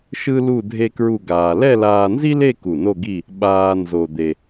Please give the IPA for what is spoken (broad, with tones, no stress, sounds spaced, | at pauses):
ʃ ɯ˥ l u˥˧ dʱ e˥ k ɹ u˥˧ ɡ aː˧ l ɛ˥˧ l aː˧ n z i˥ l e˥˧ k u˧˩ n o˥˧ ɡ i˥˧ | ɓ aː˥ n z o˧ d̪ e˧